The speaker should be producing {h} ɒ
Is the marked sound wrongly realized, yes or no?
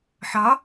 yes